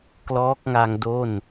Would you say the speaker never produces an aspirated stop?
yes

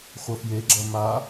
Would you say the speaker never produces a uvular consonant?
no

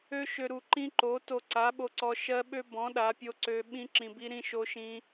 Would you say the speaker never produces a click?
no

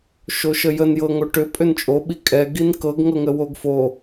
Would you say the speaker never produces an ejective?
no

